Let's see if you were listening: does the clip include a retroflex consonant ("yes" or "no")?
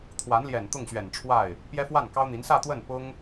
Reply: yes